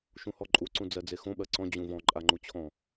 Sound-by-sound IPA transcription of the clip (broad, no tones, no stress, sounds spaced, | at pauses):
ʃ ũ h ɔ ǃʼ u ǀ ũ d͡z ɜ d͡z e x õ ɓ ɜ ǀ ɔ̃ d͡ʑ ũ v ɔ̃ ǃʼ a ŋ͡ǃ u t͡ɕʰ ɔ̃